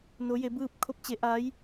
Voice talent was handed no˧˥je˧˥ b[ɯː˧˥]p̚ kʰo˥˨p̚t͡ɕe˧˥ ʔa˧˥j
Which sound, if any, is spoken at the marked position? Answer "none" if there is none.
ɯː˥˨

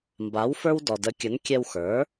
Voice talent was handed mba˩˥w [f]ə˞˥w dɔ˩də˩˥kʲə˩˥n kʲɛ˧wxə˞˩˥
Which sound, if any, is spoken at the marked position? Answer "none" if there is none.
f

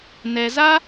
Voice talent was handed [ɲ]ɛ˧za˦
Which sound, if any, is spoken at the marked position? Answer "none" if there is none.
n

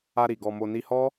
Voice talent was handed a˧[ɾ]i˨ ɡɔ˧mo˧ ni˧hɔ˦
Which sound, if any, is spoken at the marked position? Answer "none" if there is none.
ɾ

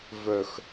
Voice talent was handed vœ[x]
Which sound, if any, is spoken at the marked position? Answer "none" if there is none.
x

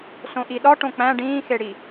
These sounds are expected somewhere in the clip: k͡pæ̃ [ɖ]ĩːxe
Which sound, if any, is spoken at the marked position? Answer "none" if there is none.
ɖ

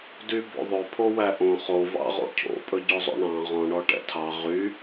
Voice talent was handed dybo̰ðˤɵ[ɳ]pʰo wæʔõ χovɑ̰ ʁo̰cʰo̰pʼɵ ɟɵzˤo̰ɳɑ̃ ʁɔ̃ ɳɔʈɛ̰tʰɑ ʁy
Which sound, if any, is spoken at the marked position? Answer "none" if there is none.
none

